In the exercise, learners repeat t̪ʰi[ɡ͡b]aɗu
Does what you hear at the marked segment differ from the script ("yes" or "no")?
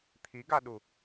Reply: yes